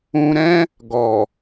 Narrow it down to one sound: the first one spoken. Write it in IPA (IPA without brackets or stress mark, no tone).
ũ